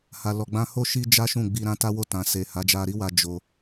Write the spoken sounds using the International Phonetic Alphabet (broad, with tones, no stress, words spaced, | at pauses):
ha˨lɔ˨ɡ͡bã˧ ho˦ ʃi˦d͡ʒa˦ ʃũ˦˨ɡ͡bi˧ ɾã˦ ta˦wo˦˨tã˨ se˨ ha˨˦d͡ʒa˧ɾi˦wa˧ d͡ʒo˧